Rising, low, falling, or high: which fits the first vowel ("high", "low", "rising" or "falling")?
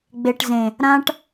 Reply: low